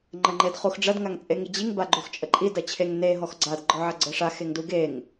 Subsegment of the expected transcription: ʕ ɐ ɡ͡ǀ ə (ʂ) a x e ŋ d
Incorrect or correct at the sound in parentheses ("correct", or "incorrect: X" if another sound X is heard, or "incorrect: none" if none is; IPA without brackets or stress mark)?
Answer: correct